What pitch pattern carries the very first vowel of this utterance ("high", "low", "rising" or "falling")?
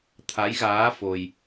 rising